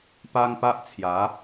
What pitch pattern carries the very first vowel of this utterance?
high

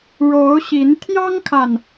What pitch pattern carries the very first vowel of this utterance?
rising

